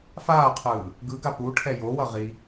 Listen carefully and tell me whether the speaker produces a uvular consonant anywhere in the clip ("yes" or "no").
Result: yes